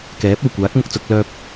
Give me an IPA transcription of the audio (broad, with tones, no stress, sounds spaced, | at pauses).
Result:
k ɛː˨˥ p̚ ɐ˨˩ w kʷ aː˨˥ k̚ m ʊ˨ k̚ t͡s ʊ˧ k̚ l œː˧ p̚